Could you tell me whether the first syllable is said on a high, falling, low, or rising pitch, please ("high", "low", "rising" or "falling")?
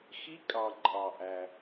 rising